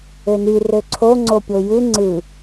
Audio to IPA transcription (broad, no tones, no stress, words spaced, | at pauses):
øny røǀʰo ŋ͡ǀopʲojɯ ŋ͡ǀɯ